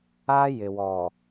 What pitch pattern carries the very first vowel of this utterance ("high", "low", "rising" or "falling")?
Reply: high